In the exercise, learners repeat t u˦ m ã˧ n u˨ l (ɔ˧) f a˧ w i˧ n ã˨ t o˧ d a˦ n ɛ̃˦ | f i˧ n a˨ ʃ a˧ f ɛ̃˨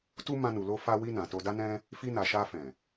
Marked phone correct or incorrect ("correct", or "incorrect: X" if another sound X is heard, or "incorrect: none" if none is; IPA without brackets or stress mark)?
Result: incorrect: o˧